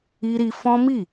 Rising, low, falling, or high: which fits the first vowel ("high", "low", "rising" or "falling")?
high